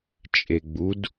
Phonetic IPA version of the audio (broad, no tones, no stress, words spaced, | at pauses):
t͡ʃʼeɡ͡bud